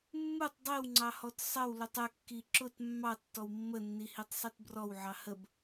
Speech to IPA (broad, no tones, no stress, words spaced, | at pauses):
mːutˤ dˤiwŋ͡ǀɑhɔt sˤəwlutˤ əkːi ǁʊt mːɑtːɔw mːənːihitˤsˤit brɔwʕɑ həb